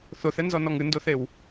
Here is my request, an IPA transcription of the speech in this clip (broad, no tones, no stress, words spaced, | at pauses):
θoθɛnzɔnɔŋ ɨndoθew